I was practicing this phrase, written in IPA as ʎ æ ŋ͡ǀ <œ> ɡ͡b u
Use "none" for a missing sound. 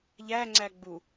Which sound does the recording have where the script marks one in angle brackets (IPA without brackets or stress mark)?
æ